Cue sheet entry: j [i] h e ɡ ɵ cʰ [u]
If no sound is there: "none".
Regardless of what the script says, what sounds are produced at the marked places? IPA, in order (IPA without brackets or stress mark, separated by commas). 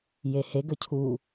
e, u